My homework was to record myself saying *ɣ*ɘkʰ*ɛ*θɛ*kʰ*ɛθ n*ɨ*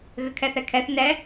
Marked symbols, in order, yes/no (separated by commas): yes, yes, yes, no